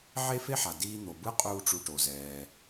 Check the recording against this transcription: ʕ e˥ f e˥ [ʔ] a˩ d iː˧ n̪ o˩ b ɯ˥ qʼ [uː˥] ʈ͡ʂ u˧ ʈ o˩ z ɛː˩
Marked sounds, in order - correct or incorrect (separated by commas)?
incorrect, correct